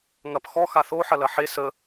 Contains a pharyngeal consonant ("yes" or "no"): yes